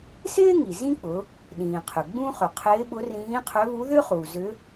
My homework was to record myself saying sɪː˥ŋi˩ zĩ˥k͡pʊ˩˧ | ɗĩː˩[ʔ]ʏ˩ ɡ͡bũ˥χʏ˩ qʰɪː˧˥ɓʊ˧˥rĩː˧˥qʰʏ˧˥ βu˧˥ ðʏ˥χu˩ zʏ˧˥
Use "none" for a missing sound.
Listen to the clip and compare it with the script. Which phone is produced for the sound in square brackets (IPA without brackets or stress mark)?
qʰ